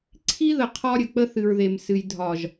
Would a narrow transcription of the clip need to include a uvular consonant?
yes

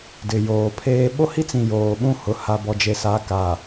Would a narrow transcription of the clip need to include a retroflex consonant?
no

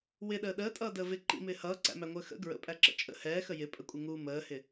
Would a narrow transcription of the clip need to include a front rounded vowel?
no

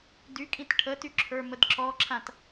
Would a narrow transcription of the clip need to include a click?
yes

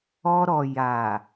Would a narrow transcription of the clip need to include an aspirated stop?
no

